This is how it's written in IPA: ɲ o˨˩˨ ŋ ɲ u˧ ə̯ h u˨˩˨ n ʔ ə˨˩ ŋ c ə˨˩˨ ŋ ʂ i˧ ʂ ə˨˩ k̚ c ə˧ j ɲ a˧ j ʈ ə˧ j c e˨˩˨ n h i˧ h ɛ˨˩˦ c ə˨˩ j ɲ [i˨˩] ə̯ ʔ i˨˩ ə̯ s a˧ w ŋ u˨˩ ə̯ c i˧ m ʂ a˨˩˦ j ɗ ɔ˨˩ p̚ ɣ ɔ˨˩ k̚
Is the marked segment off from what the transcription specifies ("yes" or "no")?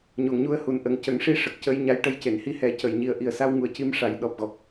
no